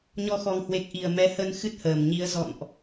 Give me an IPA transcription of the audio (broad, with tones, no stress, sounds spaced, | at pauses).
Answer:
ɲ ɔ˧ x ɔ˨˩ ŋ h w e˨˩ k̚ ʔ i˧˩ ə̯ m ɛ˨˦ h ə˧ n x ɨ˦˥ t̚ h əː˧˩ m ɲ i˨˦ ə̯ z ɔ̰˧˨ n ʔ